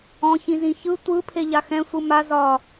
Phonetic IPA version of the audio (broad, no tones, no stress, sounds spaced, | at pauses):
ɔ̃ ç ĩ z ĩ ç ɯ tʷ ɯ pʰ e ʎ a x ɛ̃ sʷ ɯ m a z ɒ